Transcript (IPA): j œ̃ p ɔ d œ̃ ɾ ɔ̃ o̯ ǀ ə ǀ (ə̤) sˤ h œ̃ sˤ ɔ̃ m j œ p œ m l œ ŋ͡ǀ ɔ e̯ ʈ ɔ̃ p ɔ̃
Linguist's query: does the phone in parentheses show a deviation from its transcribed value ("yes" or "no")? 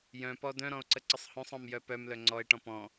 yes